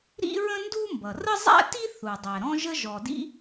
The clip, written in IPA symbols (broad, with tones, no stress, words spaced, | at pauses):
ɾḭ˥ɹə̃˥ndu˥ mbʌ˩rə˥zˤæ̰˥ti˥ θu˩ dˤæ˩ɾɔ̃˥ʒə˥ ʒɔ˩dḭ˥